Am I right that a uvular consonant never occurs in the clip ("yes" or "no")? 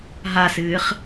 no